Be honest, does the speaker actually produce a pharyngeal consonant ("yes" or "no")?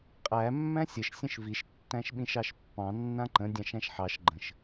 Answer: yes